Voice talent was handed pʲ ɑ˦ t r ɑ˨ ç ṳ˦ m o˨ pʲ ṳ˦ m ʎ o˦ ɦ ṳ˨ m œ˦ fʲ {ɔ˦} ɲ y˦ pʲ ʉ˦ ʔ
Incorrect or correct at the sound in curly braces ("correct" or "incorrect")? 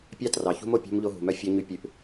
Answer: correct